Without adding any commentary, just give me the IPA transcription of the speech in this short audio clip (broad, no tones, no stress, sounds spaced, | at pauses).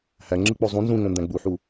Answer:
h æ ŋ͡ǁ ɯ k͡p o zˤ ũ n z ũ ŋ õ n d æ̃ ɡ͡b u ħ u